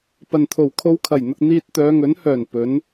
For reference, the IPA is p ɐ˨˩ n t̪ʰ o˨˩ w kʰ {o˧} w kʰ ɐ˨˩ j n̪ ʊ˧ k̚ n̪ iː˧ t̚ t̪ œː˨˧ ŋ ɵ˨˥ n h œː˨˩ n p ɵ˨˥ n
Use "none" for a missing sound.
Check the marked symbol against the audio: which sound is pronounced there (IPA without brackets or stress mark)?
o˧